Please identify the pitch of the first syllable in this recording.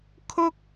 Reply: high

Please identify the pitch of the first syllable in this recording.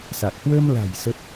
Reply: low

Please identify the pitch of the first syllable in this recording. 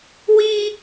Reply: high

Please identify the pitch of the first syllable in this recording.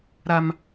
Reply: high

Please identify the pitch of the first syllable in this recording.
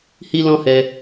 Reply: high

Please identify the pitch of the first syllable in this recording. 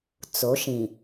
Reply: rising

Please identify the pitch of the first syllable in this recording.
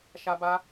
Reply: high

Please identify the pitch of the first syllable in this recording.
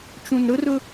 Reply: low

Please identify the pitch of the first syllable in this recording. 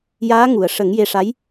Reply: rising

